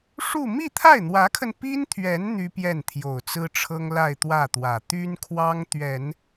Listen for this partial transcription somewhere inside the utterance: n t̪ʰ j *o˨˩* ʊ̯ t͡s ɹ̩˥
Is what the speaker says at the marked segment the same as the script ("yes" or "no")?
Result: yes